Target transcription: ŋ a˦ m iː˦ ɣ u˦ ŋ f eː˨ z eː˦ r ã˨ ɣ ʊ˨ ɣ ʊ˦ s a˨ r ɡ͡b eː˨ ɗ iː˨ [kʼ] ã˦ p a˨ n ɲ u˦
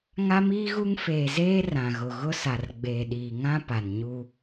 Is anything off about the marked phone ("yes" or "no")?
yes